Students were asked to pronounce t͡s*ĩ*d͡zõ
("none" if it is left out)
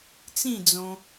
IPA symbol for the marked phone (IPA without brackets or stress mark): ĩ